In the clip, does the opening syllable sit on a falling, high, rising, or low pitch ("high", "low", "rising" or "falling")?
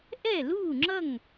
falling